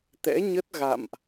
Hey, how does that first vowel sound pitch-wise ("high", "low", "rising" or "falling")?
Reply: rising